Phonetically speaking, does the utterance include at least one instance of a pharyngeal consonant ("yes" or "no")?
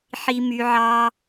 yes